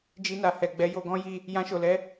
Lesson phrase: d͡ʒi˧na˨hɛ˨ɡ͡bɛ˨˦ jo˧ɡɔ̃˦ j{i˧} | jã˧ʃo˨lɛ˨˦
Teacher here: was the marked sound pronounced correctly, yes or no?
no